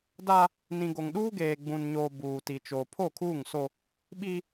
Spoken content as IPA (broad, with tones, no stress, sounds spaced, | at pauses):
d a˦ | n ĩ˨ ɡ o˨ ŋ ɗ uː˦ ɡ eː˨ ɡ͡b ũ˨ n ɲ oː˨ b uː˨ t i˨ t͡ʃ oː˨ pʰ o˦˨ kʰ uː˦˨ ŋ s o˦ | ɓ i˦